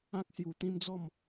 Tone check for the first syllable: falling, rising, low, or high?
high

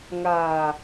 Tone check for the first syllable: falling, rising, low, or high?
low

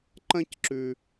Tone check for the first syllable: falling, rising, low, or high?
high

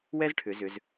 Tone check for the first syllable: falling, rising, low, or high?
high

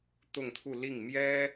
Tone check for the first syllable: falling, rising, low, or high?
falling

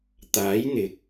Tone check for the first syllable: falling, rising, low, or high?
rising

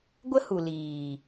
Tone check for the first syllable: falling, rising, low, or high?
high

